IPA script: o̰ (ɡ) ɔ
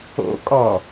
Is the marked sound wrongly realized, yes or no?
yes